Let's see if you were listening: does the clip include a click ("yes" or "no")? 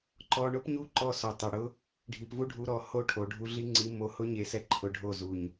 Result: yes